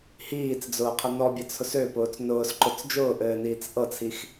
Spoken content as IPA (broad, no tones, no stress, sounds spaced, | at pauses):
h iː t͡s d͡z ʊː qʰ ə n ɔ bʲ ɘ t͡sʰ ʊ s ø p ʊː t͡s n ʊː s ǃ ʊ t͡s d͡ʒ ʊː ʔ ɘː n iː t͡s ʔ ɤ t͡sʰ i x